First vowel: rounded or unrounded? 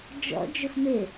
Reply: rounded